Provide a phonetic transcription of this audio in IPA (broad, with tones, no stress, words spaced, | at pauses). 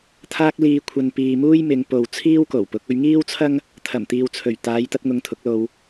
t̪ʰaː˧k̚liː˨kʷʰɐ˨n piː˨muː˥jmɪ˨˧ŋ po˨wt͡sʰiː˥wko˨˩wpʊ˨˥k̚ ɵ˧ɥŋiː˥wt͡sʰɐ˥ŋ | t̪ʰɐ˨˩mt̪iː˨w t͡sʰɵ˨˩ɥ t̪aː˨˧jt̪ɐ˧t̚ŋʊ˨˧ŋ t̪ʰʊ˨˥k̚lo˧w